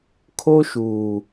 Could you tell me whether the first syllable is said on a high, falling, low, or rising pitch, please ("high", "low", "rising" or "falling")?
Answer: high